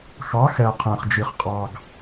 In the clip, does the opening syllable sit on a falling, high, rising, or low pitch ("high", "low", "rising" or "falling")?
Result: rising